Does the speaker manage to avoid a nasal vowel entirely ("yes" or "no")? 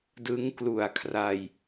yes